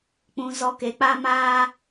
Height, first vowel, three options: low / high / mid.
high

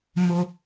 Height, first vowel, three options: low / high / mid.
mid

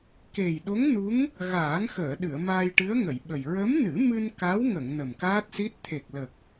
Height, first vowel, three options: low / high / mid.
mid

